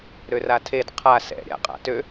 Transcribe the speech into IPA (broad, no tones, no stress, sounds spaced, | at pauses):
ɾ ø r a tʰ e d qʰ a s ɛ̰ ɾʲ a̰ qʼ a̰ t ø